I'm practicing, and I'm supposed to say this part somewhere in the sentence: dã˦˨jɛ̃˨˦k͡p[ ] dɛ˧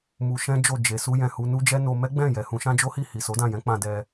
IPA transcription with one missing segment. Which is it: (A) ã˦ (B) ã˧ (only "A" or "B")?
B